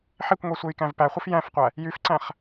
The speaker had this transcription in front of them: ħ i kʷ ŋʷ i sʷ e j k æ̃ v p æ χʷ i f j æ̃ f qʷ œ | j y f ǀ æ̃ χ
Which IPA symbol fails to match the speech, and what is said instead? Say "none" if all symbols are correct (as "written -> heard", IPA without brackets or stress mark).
œ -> æ